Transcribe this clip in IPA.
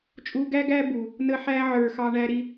t͡ʃʼu˧ɡæ˦ɡæ˦ bu˨ | nə˧ħæ˧ʕə˞˨ xɑ˧ɳæ˧ɾi˧

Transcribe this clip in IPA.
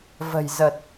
və̤˨˩jzə˨˩t̚

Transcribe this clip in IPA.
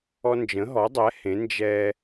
ɔ˦nd͡ʒə̃˨˥ɦɔ˨˥dˤɛ˨˥ hẽ˨˥ nd͡ʒɛ˦

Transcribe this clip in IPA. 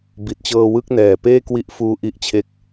bi˨˩t̚t͡ɕɤː˧wɯ˦˥k̚ nɛː˨˩peː˥˩ kwi˦˥ʔfuː˦˥ʔi˦˥ʔt͡ɕʰe˦˥k̚

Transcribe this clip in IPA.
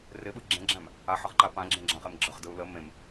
rɪɓɯ ɡ͡ǁẽɡ͡ǁæ̃m | aħəʁǃa pãɡ͡ǁẽɡ͡ǁãχem ɡ͡ǁəχdɯu̯ lə mẽm

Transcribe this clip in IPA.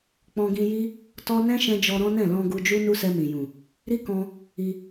k͡pɔ̃˧ɡĩ˧ji˦ | tɔ˦ nɛ̃˦ʃɛ̃˧d͡ʒɔ˧ ɾɔ̃˦nɛ̃˦˨ lɔ̃˧ ɡu˧d͡ʒu˦ nu˦sɛ˧mĩ˨jũ˨ | ɾi˦kɔ̃˧ | i˧

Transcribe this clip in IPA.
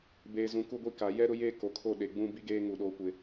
beː˨zũ˨˦ ku˦ɡʷi˦ka˨˦ jɛ˦ɾʊ˦jeː˦ ko˨kʰo˦˨ ɗe˨ɡ͡bũ˦ bi˦ɡeː˦ ŋu˦˨ɗoː˦kʷɪ˦

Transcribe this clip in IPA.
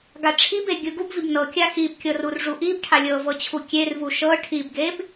ɡaʈ͡ʂʰibe ɡʲɯɡubvib nɤkʲa xibkʲɤr urʐuʔibʈʰa lʲɤvɤ t͡ɕʰukʲervu ʃɤ ʈʰibɡeb

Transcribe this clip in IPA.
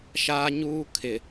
ʃaː˦ɲuː˦kʰɪ˨

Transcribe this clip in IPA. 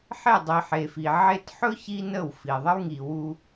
ħe˦˨dˤi˨ ħe˨fi˨ ʕe˦t ħɵ˦ çi˦nə˦˨wfi˨ ðˤə˦wŋi˨wu˦

